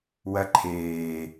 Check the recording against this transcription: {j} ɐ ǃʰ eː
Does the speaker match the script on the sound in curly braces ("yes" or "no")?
no